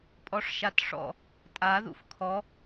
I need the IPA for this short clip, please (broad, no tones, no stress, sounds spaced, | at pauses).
pʼ ɔ ʂ ʃ a t ʂ ɔ̰ | tʼ a ð ṵ f kʰ ɔ